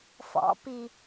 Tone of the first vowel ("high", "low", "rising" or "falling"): rising